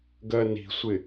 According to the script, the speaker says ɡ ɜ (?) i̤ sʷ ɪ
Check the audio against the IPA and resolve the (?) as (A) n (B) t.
A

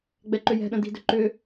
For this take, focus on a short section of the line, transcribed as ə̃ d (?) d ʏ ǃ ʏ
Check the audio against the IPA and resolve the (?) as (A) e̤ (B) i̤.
B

